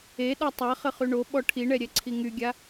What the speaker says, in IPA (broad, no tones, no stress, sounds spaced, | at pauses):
e ɗ ɔ tˤ a χ ə χ y ɳ o ɓ ɔ ʈʰ i ɳ ɛ ɾʲ ɛ ǀʰ i ŋ y ɡʲ a